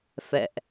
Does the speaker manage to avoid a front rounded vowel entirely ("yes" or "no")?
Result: yes